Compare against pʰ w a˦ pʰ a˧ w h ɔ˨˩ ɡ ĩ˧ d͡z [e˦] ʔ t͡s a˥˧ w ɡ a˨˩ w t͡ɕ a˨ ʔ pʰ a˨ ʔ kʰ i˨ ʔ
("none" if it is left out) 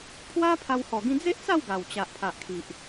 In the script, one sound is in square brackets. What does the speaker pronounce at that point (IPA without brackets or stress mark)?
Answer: e˦